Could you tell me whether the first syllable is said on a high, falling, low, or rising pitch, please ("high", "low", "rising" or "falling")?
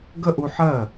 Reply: high